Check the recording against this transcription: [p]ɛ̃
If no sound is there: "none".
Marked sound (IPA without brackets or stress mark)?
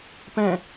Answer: p